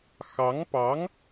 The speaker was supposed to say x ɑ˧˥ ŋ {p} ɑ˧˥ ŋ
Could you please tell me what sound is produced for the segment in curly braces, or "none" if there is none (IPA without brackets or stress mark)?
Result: p